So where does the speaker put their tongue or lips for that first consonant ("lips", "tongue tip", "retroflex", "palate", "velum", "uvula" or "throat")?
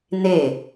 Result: tongue tip